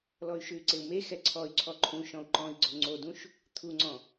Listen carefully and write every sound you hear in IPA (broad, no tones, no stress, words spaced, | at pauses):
lɔy̯ʃʉy̯ǀeu̯me xɛǀʰɔy̯ ǀʰɔǃʰũ ʃɔ̃u̯ǃɔ̃i̯ɡ͡ǀo ŋ͡ǀodũʃ | t̪ʰuŋ͡ǀɔ̃